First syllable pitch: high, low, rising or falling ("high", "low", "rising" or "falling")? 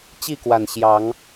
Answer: falling